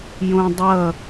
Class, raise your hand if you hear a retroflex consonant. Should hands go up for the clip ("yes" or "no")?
no